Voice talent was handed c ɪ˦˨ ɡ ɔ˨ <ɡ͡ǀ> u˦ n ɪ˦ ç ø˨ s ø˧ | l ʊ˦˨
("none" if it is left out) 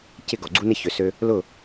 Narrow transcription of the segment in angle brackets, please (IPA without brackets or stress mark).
ɡ͡ǀ